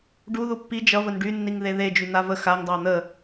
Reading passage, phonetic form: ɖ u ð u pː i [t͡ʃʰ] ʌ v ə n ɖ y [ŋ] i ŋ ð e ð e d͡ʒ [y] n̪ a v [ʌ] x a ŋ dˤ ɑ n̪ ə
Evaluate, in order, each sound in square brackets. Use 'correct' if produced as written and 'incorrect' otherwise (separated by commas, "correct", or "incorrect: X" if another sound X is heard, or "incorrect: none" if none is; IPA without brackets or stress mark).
incorrect: d͡ʒ, incorrect: nː, correct, incorrect: ə